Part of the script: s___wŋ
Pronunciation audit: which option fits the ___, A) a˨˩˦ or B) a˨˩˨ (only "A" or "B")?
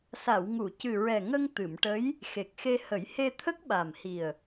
B